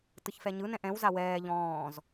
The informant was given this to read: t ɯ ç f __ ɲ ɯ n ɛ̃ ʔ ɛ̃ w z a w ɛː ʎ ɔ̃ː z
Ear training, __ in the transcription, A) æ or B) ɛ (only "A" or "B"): B